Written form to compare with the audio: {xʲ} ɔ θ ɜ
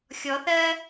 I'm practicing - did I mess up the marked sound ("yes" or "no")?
no